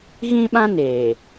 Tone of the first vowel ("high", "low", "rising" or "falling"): high